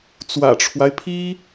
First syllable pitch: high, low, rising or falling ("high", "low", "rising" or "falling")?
low